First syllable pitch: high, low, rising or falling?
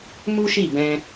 high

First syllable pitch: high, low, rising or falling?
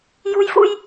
high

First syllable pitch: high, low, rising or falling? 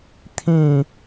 falling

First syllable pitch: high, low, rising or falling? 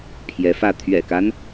rising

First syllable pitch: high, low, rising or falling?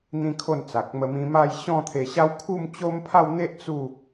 high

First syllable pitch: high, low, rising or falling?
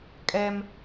high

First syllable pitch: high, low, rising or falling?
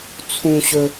high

